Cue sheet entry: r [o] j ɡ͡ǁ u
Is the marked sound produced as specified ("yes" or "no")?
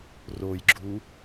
yes